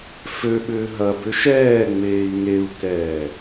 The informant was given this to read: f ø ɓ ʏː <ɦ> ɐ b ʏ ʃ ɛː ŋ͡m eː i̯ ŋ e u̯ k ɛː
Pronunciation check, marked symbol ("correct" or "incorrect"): correct